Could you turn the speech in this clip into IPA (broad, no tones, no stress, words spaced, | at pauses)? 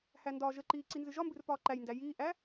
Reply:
hændɒːʒəǃiː ǀinzɨʒɒmbɨr pɒːǃæjndæ jiːʔæ